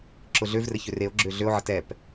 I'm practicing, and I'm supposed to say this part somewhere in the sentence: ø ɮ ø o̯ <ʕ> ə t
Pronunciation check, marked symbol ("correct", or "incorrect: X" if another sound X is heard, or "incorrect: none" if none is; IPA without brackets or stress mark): correct